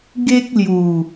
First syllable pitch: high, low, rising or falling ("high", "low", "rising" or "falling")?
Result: high